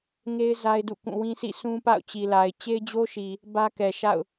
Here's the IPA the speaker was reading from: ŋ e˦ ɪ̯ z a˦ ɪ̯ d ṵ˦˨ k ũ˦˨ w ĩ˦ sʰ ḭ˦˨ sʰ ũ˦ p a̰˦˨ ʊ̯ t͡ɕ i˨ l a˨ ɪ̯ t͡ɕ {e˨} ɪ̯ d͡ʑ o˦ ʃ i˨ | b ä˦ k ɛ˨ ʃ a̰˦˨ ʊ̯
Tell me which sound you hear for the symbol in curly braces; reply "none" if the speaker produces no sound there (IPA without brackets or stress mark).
e˦